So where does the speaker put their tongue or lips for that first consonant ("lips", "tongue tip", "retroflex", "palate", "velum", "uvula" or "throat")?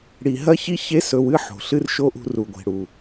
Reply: retroflex